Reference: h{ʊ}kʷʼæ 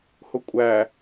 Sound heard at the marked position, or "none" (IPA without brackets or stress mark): ʊ